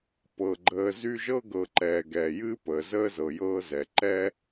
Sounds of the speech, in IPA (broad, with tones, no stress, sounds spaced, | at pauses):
p ɤ˩ ɡ͡ǃ əː˨ z y˦ ʒ ɤ˥ ɡ ɤ˨ ǃ ɛː˩ ɡ ɛː˩ j ɨː˦ p əː˩ z əː˥ z ɤ˩ j ɤː˦ z ɛ˩ ǃ ɛ˦